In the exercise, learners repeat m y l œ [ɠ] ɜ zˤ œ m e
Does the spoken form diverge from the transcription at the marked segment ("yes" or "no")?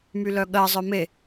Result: no